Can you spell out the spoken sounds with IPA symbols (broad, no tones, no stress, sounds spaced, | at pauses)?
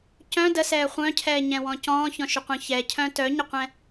c œ̃ d ə s ɛː χʷ œ̃ cʰ ɛː ɲ ɛ̃ w ɔ̃ c ɔ̃ː ç ɔ̃ ʃ ʏ qʷ œ̃ ç ɛ cʰ œ̃ t œ ɲ ə qʷ ɛ̃